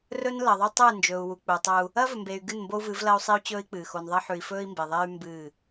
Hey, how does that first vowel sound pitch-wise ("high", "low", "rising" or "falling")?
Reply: high